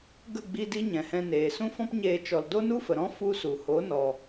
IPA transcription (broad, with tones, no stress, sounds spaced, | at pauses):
ɡ ə˦˨ ɡ͡b i˧ d i˦ ɲ ɛ̃˨ h ɛ̃˧ n eː˨ s ũ˦ f ɔ̃˦ p ɲ eː˧ t͡ʃ ɔ˧ l d o˦ n u˦ f ə˨ ɾ ɔ̃˦ f u˦ s u˨ h o˨˦ n ɔ˨